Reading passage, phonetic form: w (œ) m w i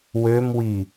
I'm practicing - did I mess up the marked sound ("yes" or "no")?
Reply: yes